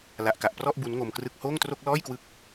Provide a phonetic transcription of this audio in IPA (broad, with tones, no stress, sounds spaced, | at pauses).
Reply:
l a˨˩ ʔ k a˨˩ ʔ p r ɔ˥˩ ʔ b u˦˥ n ŋ o˧ m k r ɯ˥˩ k̚ h oː˥˩ ŋ t r o˥˩ k̚ l ɔː˥˩ j k w ɯ˦˥ k̚